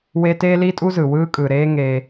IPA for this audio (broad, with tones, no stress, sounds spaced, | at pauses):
w e˦ t eː˥ l i˥ tʼ u˥ z ɯ˩ w ɯː˦ kʼ ɯ˩ ɾ eː˦ ŋ eː˨